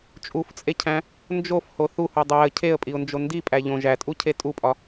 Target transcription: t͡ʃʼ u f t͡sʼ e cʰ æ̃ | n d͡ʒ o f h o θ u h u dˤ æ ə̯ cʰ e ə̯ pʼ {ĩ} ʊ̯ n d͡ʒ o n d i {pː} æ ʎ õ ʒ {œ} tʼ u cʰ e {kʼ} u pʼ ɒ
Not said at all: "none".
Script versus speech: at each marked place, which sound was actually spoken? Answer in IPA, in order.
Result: i, pʼ, æ, tʼ

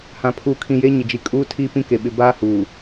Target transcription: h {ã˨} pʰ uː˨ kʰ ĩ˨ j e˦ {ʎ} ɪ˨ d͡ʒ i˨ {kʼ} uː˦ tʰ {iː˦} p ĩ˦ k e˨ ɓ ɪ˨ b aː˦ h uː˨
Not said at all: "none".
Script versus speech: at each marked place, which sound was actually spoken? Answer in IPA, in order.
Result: ã˨, ɲ, kʼ, iː˦

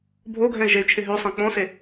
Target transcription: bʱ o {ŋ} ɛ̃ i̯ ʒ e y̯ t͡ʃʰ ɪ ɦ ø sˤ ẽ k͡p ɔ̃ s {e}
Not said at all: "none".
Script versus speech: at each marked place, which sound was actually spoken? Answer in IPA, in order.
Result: ɡʱ, e

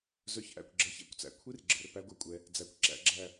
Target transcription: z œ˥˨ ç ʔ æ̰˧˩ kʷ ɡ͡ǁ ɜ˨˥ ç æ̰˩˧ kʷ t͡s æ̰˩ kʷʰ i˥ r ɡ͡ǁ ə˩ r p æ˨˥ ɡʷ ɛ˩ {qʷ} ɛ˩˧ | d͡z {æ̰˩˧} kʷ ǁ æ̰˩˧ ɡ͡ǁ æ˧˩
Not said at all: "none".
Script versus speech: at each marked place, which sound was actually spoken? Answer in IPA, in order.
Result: kʷʼ, æ˩˧

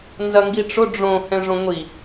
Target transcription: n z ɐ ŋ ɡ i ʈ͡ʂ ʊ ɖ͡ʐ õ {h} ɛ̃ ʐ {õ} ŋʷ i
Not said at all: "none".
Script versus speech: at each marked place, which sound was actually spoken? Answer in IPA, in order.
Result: h, õ

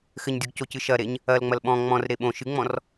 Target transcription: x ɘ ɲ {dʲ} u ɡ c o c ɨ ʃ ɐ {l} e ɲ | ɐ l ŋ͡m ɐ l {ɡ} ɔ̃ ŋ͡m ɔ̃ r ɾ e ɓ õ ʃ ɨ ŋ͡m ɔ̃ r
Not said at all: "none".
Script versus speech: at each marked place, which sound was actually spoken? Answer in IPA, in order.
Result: dʲ, ɾ, ɓ

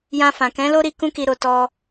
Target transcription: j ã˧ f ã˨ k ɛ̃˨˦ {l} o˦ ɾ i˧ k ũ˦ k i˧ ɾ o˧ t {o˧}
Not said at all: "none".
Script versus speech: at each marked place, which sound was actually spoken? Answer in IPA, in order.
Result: l, ɔ˧

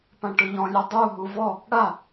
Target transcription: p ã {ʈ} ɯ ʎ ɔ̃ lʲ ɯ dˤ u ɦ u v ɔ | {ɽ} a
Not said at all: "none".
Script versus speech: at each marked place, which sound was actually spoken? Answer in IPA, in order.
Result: ʈ, ɽ

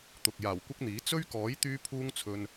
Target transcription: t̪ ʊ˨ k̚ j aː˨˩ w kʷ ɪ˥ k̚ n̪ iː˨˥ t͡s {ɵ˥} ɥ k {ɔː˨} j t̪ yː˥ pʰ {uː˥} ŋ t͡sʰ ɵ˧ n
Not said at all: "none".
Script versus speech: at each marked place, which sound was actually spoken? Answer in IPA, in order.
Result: ɵ˥, ɔː˨˥, uː˥

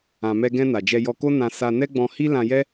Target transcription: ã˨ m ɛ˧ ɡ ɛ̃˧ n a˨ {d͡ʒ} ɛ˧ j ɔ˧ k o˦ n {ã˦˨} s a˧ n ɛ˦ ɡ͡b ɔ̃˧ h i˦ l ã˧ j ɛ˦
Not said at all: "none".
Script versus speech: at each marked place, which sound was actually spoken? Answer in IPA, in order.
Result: d͡ʒ, ã˧

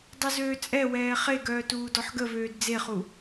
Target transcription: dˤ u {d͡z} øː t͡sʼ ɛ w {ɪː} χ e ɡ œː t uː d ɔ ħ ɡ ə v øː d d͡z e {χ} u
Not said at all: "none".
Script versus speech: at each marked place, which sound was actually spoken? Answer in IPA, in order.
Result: z, ɛː, χ

